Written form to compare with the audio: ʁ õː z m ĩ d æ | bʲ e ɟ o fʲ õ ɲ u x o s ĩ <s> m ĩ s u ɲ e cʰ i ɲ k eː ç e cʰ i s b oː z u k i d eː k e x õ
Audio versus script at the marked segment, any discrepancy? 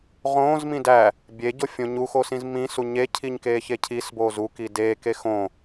yes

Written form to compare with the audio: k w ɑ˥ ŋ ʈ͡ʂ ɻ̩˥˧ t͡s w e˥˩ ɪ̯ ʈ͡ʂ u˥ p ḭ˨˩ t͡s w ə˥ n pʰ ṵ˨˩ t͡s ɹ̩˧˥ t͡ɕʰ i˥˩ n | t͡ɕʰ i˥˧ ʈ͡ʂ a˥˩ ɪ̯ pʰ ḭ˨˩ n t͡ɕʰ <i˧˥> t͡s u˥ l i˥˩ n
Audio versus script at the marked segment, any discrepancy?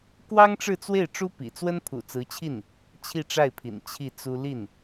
yes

